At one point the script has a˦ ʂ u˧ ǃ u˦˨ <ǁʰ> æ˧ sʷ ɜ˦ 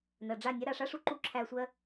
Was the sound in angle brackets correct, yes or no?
yes